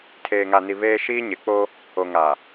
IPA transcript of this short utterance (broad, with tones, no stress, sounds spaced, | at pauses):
tʰ eː˨ ŋ a˨ n i˨ β eː˦ ʃ iː˦ ɲ ɪ˨˦ k͡p o˦ | o˨ ŋ a˨